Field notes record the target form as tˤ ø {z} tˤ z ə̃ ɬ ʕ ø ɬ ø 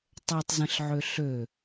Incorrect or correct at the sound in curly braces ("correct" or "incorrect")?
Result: incorrect